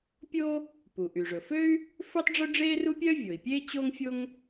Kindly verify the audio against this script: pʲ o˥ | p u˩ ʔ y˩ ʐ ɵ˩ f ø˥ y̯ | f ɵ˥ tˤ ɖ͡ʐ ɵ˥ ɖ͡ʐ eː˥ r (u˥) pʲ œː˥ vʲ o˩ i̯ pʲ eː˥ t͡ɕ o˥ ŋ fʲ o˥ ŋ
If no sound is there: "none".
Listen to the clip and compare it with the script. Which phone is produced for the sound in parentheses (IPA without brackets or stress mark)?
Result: u˥